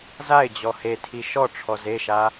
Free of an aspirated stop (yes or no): no